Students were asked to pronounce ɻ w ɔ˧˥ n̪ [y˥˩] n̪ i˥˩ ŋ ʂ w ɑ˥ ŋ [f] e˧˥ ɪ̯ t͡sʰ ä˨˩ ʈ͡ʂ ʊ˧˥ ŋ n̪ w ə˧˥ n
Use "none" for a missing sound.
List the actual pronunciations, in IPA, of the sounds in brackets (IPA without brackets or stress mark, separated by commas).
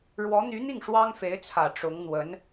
y˧˥, f